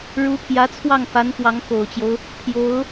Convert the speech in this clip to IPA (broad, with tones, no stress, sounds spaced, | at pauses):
ɻ u˧˥ pʰ j ä˧˥ t͡sʰ w ɑ˥˩ ŋ f a˧˥ n k w ɑ˧˥ ŋ k o˨˩ ʊ̯ t͡ɕ j o˦ ʊ̯ | pʰ j o˧˥ ʊ̯